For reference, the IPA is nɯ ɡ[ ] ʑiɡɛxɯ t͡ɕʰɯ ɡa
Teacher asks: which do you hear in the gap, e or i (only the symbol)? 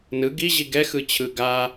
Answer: i